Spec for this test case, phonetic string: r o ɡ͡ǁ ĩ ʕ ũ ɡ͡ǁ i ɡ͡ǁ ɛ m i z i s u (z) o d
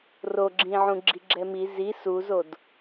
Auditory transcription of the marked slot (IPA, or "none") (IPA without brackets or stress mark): z